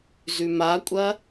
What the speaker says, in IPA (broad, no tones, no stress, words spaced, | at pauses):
zʉmakʷʼɐ